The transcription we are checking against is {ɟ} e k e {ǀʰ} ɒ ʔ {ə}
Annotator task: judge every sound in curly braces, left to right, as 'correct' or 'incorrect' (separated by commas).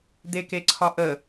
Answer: incorrect, correct, correct